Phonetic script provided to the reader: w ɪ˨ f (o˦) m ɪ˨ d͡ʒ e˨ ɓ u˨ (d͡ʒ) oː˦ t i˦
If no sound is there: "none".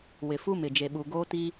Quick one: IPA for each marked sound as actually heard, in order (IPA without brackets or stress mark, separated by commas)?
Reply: u˦, ɡ